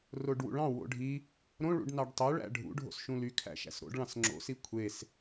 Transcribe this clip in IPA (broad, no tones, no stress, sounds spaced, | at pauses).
r o ɖ w ṵ ɭ ɑ̃ w o̰ ɖʱ i | ɾ õ ɭ ṵ ɖ n ɑ ɖ tˤ ø ɭ æ̰ ɖʱ ṵ ɖʱ o̰ s ʃ ũ l y kʰ æ̰ ʃ æ̰ s ɾ o̰ ɖ ɭ ɑ̃ s ŋ͡ǁ o̰ s i kʷʰ e s